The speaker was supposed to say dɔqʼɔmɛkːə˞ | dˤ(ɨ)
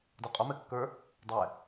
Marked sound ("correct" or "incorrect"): incorrect